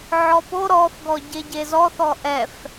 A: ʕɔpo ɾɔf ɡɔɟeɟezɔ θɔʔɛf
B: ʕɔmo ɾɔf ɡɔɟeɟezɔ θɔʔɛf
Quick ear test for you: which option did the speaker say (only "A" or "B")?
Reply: A